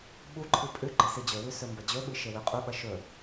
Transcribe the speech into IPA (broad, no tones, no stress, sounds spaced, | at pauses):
ɓ u ǃʰ ɨ pʼ ʉ ɡ͡ǃ e s i d͡ʑ ɵ w ʉ s ɵ m b ɐ d͡ʑ ɵ ɓ ɨ ʃ e w ʉ qʼ u ɓ ɐ ʃ ɵ